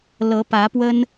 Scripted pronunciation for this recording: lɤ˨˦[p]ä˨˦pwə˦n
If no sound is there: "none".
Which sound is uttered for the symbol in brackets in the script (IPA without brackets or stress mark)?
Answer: p